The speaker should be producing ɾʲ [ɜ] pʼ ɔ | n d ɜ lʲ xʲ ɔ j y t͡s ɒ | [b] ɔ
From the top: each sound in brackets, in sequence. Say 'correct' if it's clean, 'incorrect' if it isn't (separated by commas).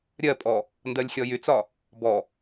correct, correct